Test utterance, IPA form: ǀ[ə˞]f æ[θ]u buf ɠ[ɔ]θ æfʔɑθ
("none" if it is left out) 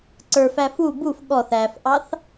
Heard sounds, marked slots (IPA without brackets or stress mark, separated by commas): ə˞, f, ɔ